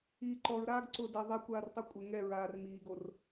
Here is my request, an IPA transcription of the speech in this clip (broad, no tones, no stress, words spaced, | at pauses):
iːǃɔɹɾaːɡ ǀʊːdɛ ðˤakʷaːr tˤokʷʼɪ ŋɛɹaːr miːɡor